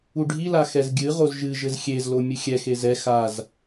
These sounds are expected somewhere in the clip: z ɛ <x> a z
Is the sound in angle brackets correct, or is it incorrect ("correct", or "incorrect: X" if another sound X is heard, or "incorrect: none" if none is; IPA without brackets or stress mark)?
correct